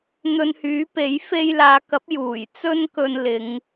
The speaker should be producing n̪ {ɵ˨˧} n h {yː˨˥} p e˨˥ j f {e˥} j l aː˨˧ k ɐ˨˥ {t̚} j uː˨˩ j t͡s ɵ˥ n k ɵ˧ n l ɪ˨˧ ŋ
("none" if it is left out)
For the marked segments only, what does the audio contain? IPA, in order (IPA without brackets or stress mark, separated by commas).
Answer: ɵ˧, yː˨˥, e˥, p̚